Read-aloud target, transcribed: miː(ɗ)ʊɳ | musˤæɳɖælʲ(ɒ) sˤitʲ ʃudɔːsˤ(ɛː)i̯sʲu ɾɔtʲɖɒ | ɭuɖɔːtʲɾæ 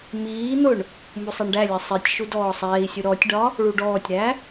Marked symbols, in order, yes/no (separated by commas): no, yes, yes